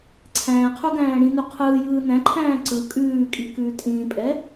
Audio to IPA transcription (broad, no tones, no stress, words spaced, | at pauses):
ǀʰæ̃ːqʰu ɡæ̃ːɽĩnu qʰɯːjɯː næ̃ǃʰæ̃ː ǀɯ kʼʉːkʼi kʉːtʼĩːpʼɛ